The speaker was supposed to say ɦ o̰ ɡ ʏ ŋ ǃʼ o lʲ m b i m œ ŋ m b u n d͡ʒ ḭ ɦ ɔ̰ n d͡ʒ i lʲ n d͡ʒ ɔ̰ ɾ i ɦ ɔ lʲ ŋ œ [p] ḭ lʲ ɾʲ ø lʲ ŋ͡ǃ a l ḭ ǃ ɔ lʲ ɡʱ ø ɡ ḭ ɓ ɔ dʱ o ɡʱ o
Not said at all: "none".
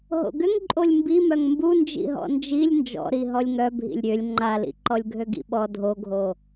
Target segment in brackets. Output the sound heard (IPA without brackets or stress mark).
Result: bʱ